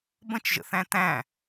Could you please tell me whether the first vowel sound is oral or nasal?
nasal